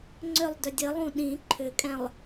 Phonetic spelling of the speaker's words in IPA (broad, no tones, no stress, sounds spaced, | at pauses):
ŋ͡ǀ ʏ lˠ d ʏ dʲ ɘ lˠ ũ ɗ ĩ ǃʰ ʏ kʼ ɛ̃ lˠ